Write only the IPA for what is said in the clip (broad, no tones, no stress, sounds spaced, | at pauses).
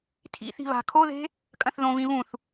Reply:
tʰ ḭ θ i̤ β a̤ kʰ o ð e̤ | kʼ ɐ̃ θ ð õ v ĩ β ũ θ